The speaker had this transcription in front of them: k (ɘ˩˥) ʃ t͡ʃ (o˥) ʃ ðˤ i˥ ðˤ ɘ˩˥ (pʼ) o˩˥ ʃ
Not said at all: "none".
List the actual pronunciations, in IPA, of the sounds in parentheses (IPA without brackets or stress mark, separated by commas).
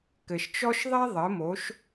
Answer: ɘ˩, ɔ˥, m